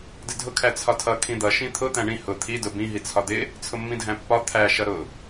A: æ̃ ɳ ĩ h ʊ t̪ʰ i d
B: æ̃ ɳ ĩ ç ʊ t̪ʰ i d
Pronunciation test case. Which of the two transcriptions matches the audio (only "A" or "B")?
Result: A